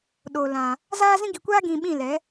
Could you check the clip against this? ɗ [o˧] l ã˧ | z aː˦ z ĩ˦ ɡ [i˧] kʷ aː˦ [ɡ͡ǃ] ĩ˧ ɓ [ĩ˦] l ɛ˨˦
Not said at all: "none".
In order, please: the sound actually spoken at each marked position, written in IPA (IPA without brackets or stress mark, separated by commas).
o˧, i˧, ɡ, ĩ˦˨